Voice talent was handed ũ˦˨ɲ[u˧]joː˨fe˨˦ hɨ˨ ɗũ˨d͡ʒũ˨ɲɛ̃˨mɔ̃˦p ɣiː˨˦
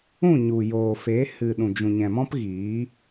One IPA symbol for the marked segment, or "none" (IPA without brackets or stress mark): u˨